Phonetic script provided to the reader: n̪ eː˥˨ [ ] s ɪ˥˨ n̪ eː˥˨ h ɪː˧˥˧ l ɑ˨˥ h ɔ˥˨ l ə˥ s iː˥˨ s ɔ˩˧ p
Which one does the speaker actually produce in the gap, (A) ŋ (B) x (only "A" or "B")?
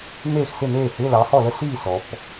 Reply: B